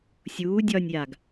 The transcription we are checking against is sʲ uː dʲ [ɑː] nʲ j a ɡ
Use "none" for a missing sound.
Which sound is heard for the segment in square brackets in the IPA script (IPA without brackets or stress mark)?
ɒː